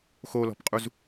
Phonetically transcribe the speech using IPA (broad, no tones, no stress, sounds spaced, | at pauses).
x o l ɔ̤ p qʼ u z